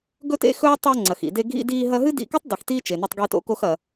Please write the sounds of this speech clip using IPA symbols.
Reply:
ɡ ɵ˧ t ḛ˥ x ɵː˥ tˤ o˧ ŋ͡ǀ ɐ˩ x ḭ˩ d e˧ ɡʱ ḭ˧ d iː˧ ɦ ɐ˧ ɦ ɨ˥ d ḭ˧ k ɵ˥ tˤ d i˩ x t iː˥ t͡ʃ e˩ n ɵ˧ tˤ ɡ iː˧ t o̰˧ k o˧ x ɐ˩

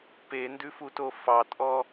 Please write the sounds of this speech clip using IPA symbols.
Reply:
p e n d ʉ f u t o f ɑ tʼ ɔ

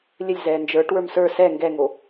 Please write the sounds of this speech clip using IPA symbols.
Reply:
lʲ ɘ lʲ z ɛː n d͡ʒ ə˞ ʈ w ə˞ m s ə˞ s ɛ ŋ ɡ ɛ ŋ o

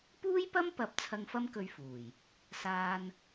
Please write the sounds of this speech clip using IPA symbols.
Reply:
p uː˥ j p ɐ˥ m p ɐ˨˥ p̚ t͡sʰ ɐ˧ ŋ f ɐ˥ m k ɵ˧ ɥ f uː˨˩ j | s aː˧ n

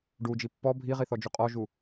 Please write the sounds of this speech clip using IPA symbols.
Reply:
ɖ u d͡ʒ i pː ɔ bʱ i ʁ i θ ɔ d͡ʒ u qʼ ɔ ʒ u

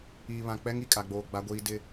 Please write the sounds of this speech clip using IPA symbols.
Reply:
iː˨ β ã˨ k͡p ɛ˦ ŋ i˨ kʼ a˨ ɡ͡b oː˨ ɡ͡b a˦ ɡʷ iː˦ d ɪ˦

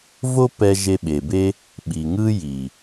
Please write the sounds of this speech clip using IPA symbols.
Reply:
v o˦ p ɛ˧ ʒ e˧ ɓ e˨ b e˦ | ɓ i˨ ŋ ɯ˦ j i˨

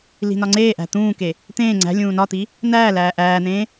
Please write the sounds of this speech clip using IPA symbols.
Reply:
l i̤ n ɒ ŋ͡ǀ eː ʔ æ̤ t̪ ũː k e | t̪ ẽː ŋ͡ǀ æ̤ lʲ ũː n ɒ t̪ i | n̪ æː l æː ʔ æː n̪ ẽː

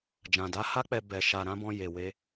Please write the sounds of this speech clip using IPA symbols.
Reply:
d͡ʒ ã˨ d a˨˦ h a˦ k͡p ɛ˧ b ɛ˨ ʃ a˨ ɾ ã˨˦ b ɔ̃˧ j e˨ w e˧

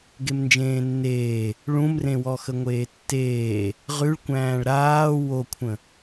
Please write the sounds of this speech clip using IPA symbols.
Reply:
ɡ e m n d͡ʒ ẽː nː eː | ɭ ũ m r ẽ w ɔ x ə ŋʷ eː tː eː | ʁ ʉ ɭ kʷ æ̃ː ɭ ɾ aː w o kʷʰ ə̃

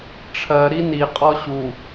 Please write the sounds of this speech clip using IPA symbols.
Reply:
ʈ͡ʂʰ ɜ ɾ i n i qʼ ɔ ɕ u

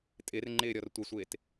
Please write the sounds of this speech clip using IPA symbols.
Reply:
tʼ ɪ r ŋ͡ǃ ɪː ɾʲ ɔ r tʷ ɪ sʷ ɪː t

